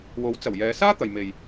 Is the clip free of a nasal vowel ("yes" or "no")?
yes